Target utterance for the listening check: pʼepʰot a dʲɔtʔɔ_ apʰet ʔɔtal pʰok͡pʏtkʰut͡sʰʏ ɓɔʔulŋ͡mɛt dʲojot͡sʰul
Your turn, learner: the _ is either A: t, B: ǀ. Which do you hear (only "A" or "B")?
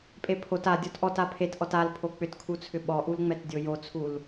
A